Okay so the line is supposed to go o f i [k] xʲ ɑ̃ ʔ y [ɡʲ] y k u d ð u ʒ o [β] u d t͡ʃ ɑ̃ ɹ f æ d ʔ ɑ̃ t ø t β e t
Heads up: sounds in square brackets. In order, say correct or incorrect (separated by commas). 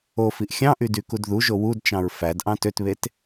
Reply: incorrect, incorrect, incorrect